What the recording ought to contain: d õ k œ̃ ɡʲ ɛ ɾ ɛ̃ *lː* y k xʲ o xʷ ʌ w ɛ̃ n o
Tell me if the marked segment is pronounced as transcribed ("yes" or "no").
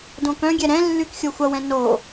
yes